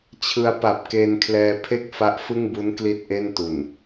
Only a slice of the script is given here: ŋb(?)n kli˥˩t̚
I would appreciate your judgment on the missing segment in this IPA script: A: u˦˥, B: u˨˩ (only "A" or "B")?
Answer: A